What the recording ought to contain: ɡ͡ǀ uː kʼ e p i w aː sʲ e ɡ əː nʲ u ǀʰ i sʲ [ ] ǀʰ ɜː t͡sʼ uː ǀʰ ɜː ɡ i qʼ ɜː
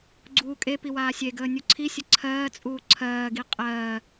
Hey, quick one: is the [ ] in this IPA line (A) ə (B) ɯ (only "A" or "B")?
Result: A